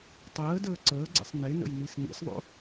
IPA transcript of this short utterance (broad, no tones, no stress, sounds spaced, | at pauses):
tˤ əː d əː ǀ əː ɡ͡ǀ ḛ sˤ n e n ə̰ j n i s n ḭ s ðˤ o̰